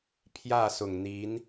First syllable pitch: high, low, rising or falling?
falling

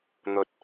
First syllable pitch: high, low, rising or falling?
low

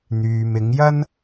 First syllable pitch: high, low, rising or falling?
low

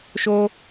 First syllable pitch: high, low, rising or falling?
high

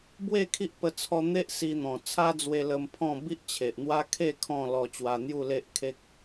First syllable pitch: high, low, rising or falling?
falling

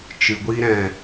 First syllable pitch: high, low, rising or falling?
low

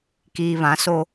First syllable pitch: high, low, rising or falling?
low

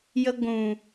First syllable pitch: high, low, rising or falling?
low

